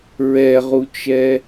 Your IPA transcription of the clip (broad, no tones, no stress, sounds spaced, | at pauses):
ɹ ɛ ʁ u t͡ʃ ɛ